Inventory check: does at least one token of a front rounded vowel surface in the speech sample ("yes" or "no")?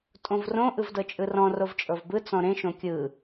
no